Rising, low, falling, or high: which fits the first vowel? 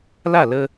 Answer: falling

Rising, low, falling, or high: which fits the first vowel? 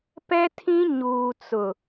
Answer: high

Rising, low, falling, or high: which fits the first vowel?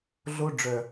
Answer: high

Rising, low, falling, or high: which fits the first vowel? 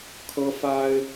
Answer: high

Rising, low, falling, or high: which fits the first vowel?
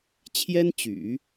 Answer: high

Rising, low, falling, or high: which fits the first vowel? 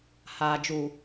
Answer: low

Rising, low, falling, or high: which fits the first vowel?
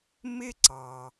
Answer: high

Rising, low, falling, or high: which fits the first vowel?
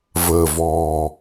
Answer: low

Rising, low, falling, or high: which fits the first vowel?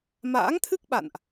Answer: rising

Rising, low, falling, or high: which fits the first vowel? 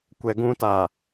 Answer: low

